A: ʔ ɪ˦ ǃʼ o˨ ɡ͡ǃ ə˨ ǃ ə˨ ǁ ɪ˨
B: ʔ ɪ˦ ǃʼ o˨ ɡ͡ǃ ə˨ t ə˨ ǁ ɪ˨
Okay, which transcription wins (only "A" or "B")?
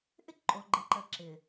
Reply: A